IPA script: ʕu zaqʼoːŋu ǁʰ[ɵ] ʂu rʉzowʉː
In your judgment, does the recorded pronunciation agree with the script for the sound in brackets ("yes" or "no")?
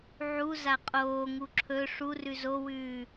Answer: yes